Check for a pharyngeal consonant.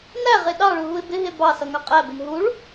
absent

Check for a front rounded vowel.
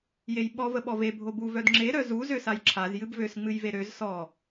present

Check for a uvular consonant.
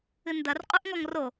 present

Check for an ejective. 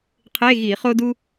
absent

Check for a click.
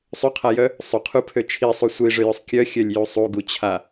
absent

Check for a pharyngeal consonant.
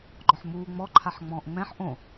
present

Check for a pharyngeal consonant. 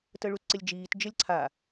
absent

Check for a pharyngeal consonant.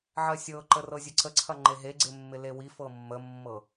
present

